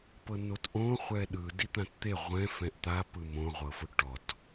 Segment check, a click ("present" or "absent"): absent